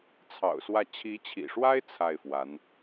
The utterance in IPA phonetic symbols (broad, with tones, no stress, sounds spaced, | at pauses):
t͡sʰ ɑ̰˨˩ ʊ̯ s w ä˥˩ t͡ɕʰ i˧˥ t͡ɕʰ ḭ˨˩ ʂ w a˥ ɪ̯ t͡sʰ a˥˩ ɪ̯ f w a˧˥ n